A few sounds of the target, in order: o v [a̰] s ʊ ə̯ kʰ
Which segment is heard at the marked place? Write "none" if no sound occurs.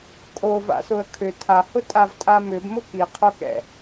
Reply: a̰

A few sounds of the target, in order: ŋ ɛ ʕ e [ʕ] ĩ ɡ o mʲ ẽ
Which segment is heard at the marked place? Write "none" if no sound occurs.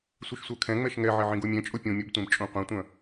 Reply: ʕ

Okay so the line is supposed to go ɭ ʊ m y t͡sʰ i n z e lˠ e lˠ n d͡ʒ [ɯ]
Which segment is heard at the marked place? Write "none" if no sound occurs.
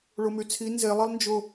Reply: ʊ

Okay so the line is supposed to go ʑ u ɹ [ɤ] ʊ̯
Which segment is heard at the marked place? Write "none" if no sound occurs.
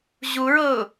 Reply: ɤ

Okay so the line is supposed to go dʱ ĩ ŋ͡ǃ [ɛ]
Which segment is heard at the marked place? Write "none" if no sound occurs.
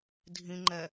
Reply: ɛ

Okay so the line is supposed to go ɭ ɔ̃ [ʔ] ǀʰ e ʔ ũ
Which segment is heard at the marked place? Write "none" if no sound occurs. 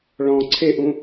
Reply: none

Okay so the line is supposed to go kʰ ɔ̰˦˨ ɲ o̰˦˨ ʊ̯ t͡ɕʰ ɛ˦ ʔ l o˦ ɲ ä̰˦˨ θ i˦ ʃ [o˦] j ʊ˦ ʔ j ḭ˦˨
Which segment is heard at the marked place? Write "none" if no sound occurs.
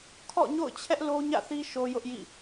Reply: o˦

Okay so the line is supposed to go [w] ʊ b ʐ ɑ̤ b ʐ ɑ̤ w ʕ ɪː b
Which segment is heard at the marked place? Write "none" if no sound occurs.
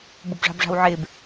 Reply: b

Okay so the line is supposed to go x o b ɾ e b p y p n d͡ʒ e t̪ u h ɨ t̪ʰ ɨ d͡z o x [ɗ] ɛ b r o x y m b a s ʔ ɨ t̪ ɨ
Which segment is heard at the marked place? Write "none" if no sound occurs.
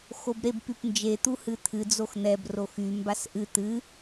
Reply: n̪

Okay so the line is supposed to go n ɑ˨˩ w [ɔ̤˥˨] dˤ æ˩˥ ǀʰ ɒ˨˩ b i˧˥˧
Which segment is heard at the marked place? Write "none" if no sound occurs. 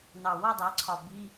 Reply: ɔ˥˨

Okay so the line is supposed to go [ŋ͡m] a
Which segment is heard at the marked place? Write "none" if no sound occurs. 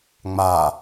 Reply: ŋ͡m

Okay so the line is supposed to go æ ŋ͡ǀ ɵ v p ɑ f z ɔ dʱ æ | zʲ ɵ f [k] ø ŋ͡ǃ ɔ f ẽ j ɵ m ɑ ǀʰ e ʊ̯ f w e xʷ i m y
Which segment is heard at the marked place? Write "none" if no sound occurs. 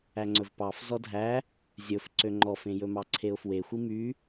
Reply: ǀ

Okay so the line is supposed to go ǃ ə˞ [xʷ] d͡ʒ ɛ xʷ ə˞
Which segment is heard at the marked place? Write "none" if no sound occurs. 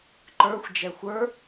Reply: xʷ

